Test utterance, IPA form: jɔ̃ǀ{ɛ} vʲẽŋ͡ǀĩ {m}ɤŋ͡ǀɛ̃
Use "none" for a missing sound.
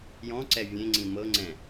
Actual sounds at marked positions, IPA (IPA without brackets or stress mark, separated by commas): ɛ, m